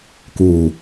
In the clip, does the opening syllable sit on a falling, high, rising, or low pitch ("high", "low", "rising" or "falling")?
low